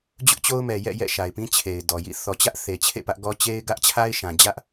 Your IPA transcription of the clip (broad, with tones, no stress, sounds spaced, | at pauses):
d͡ʑ ʊ˦ ʔ t͡ɕ o˦ ʊ̯ m ɛ˨ j ɛ̰˦˨ j ɛ̰˦˨ ʃ a˨ ɪ̯ p ĩ˦ t͡ɕʰ e˨ ɪ̯ d ɔ˨ j ḭ˦˨ θ ɔ˨ t͡ɕ ä˦ ʔ θ e˨ t͡ɕʰ ḛ˦˨ p ä˦ ʔ ɡ ɔ˦ t͡ɕ e˦ ɪ̯ ɡ ä˦ ʔ t͡ɕʰ a˦ ɪ̯ ʃ ã˨ d͡ʑ ä˦ ʔ